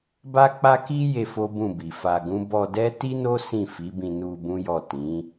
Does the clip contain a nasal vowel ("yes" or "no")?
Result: yes